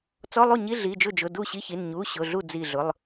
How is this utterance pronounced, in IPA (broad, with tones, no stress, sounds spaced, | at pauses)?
t͡s ɔ˧˥˧ lˠ u˥˩ ɲ i˧˥˧ ɮ i˩˧˩ d͡ʒ ʊ˥˩ d͡ʒ ʊ˩˧˩ d u˥˩ ɕ i˧˥˧ ç i˩˧˩ n ɲ u˩˧˩ ɕ ʊ˩˧˩ ɮ u˥˩ d͡z i˧˩ ɮ ʊ˩˧˩ lˠ